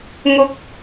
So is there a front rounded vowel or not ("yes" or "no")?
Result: no